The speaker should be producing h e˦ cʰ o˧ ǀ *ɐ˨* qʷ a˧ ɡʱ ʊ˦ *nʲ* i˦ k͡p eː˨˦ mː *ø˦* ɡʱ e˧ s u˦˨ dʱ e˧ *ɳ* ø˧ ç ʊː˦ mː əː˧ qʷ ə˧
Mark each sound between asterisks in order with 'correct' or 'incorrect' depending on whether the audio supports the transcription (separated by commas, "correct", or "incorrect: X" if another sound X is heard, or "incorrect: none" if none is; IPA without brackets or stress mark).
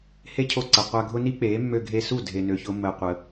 correct, incorrect: n, incorrect: ø˧, incorrect: n